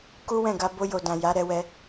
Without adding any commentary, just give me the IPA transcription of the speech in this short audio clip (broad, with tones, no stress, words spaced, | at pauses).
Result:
ku˦wɛ̃˦˨ ɡa˧ bo˦jo˧dã˨ ja˨˦ɾɛ˧wɛ˧